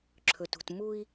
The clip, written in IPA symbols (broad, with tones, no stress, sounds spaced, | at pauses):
ǁʰ ɵ˨ t ṳ˨ t m u˦ i̯